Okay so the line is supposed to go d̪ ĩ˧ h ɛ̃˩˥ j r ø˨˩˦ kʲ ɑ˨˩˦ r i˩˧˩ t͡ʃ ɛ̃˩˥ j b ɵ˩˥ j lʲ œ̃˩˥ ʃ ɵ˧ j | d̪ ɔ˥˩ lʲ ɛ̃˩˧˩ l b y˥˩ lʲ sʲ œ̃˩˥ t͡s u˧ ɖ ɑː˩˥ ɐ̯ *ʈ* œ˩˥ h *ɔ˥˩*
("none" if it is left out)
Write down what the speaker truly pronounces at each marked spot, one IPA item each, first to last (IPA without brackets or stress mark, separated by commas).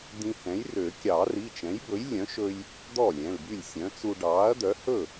d̪, ɵ˥˩